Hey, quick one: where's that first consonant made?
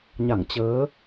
palate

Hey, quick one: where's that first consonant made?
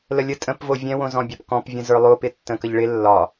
tongue tip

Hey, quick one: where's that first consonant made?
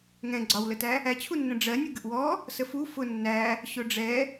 velum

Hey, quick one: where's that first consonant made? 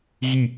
velum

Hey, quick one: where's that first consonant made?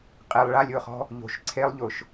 uvula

